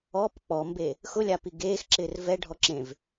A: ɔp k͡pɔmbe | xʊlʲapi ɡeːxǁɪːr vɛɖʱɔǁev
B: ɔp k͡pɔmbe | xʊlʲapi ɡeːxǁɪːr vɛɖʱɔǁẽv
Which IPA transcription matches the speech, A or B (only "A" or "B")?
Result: B